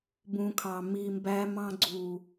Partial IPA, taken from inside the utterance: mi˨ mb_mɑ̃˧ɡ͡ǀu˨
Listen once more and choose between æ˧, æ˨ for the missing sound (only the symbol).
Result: æ˧